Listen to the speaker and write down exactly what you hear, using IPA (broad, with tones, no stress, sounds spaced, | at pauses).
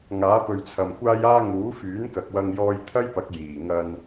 ŋ aː˨˥ p ɵ˨ ɥ t͡sʰ ɐ˨ m kʷ aː˧ j aː˧ ŋ uː˨˥ f yː˨˥ n k ɐ˨ k̚ w ɐ˧ ŋ j ɔː˧ j t̪ʰ ɐ˥ j p ɐ˨˥ k̚ j iː˨˩ ŋ ɐ˧ n